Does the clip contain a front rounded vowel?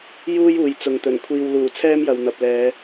no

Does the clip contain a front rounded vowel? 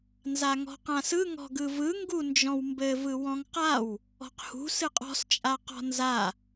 no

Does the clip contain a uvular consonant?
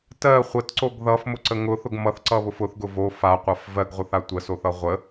yes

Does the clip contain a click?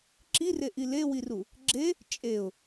yes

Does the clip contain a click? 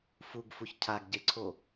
yes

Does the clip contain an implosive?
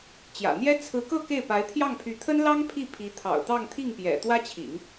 no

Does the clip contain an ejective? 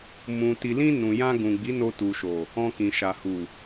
no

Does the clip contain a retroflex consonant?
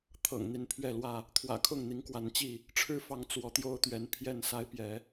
yes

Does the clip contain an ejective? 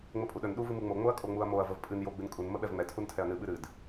yes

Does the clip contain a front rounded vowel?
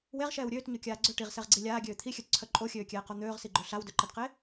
yes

